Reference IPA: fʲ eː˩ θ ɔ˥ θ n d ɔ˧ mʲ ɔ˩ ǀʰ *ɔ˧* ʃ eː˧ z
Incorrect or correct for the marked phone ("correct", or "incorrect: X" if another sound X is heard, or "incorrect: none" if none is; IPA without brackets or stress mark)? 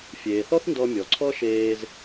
incorrect: ɔ˥